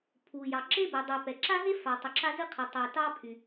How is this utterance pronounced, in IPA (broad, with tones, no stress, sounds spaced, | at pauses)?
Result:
pʰ u˩ j ɑ˩ ǁ e˥ b e˩ dˤ y˩ p ɛ˩ ǁ a˥ ɦ e˥ f a˩ tˤ ɨ˩ ǁ a˥ z ɨ˥ qʰ ɛ˩ tˤ y˩ t ɑ˥ pʰ y˩